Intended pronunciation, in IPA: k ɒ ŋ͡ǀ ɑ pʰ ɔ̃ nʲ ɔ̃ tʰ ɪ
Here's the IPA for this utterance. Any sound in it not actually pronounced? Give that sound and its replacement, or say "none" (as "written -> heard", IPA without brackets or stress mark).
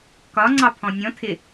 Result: none